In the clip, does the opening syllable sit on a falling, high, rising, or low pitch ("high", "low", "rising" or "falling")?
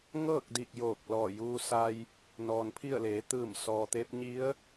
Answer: falling